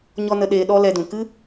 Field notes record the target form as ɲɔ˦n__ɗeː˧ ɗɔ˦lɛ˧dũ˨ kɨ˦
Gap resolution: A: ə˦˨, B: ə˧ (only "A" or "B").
B